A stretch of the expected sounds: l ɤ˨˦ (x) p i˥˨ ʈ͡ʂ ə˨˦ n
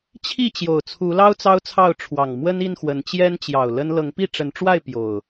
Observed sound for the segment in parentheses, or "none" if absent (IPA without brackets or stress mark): ŋ